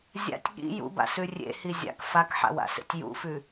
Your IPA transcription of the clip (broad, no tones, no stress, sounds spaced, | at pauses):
zʲ a̰ tʲ ɠ ḭ j ṵ b a̰ s ʉ rʲ ḛ h i zʲ a̰ k f a k ħ a̰ w a̰ s ḛ tʲ j ṵ f ʉ